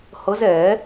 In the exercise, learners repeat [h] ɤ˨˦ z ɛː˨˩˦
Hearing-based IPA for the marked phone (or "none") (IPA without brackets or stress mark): h